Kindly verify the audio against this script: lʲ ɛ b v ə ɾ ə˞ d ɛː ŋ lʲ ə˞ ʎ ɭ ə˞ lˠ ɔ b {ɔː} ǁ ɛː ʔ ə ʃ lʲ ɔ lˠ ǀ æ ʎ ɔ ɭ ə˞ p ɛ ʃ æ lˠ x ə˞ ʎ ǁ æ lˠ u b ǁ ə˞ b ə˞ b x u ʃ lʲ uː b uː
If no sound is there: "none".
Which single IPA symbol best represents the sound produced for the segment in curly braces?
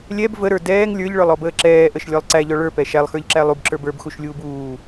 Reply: əː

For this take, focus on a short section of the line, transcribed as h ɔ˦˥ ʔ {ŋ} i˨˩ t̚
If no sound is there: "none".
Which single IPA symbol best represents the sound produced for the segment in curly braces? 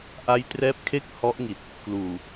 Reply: ŋ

